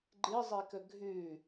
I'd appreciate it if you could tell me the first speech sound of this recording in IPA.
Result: ɡ͡ǃ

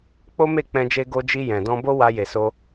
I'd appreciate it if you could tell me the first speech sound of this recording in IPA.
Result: k͡p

